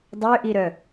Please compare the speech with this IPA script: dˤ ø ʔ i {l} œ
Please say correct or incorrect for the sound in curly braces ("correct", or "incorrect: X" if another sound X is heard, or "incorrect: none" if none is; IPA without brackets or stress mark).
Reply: incorrect: ɾ